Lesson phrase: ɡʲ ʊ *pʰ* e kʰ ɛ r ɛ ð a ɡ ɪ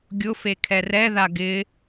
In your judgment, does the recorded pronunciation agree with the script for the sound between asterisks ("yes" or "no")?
no